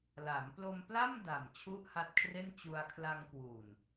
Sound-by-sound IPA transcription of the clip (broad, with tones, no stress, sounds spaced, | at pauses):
l a˩˦ m p l o˧ m p l a˥˩ m d a˨˩ m t͡ɕʰ u˥˩ ʔ h a˦˥ t̚ kʰ r e˥˩ n t͡ɕ u˧ a̯ kʰ l a˧ ŋ k w u˨˩ n